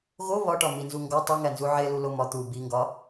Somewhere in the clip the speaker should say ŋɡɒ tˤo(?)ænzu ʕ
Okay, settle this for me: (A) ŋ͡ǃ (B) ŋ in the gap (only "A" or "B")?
B